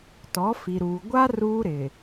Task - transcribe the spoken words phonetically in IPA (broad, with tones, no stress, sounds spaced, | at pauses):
t ɔ˨˦ f i˨ ɾ uː˨ ɡʷ a˦ r uː˦ ɾ ɪ˨